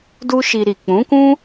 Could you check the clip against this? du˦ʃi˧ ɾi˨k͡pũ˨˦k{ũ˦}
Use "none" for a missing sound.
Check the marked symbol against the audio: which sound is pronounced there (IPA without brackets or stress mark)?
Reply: ũ˦